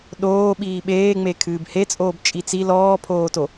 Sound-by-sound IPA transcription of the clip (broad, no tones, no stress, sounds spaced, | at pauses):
ɗ oː ɓ iː ɓ eː ŋ͡m e kʰ ɨː b h e t͡sʼ oː b t͡ʃʼ i t͡s i l ɔː pʰ oː t o